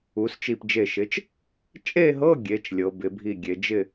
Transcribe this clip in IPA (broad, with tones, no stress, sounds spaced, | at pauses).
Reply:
u˩˧ s t͡ʃ i˧˩ p d͡ʒ e˧˩ ʃ ɪ˨˥ t͡ʃ | t͡ʃʼ e˥˧ ɦ ɤ˧˥˧ ɡʲ e˩˧ t͡ʃ lʲ ɤ˩˧ b ɪ˩˧ bʱ i˧˩ ɡʲ e˩˧ d͡ʒ ɪ˥˧